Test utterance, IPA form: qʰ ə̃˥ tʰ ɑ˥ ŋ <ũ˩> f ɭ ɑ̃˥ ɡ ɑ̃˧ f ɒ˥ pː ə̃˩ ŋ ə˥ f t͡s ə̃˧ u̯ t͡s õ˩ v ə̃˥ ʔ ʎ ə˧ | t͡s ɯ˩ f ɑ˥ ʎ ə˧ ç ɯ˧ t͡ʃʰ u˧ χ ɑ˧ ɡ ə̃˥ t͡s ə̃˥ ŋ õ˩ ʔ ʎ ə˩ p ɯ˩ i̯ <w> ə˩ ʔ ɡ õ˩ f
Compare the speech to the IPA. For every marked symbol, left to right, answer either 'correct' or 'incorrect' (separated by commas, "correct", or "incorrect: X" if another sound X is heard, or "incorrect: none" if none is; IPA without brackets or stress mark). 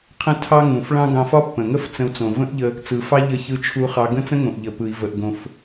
correct, incorrect: v